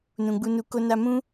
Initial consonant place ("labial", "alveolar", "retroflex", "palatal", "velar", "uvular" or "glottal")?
alveolar